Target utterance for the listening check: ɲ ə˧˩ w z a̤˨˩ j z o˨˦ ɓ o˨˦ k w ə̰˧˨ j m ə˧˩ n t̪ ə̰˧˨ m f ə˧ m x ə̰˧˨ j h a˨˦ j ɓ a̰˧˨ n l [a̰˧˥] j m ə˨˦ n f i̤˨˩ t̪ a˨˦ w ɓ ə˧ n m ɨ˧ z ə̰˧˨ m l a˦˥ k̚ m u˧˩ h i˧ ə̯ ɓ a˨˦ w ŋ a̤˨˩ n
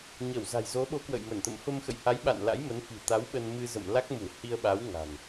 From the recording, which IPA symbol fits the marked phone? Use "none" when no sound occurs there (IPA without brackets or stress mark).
a̰˧˥